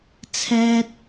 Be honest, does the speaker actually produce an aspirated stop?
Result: yes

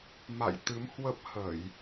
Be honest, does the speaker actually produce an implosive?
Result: no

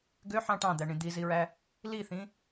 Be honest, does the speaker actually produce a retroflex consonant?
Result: yes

